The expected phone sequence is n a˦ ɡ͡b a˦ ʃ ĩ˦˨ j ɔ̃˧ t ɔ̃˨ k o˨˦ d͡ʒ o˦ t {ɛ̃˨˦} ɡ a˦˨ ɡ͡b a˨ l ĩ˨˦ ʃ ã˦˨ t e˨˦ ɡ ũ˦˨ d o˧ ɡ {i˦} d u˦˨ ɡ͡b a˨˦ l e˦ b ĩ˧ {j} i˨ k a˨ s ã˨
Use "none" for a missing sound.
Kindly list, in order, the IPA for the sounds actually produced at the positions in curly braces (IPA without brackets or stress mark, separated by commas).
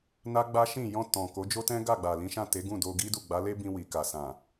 ɛ̃˦, i˦, w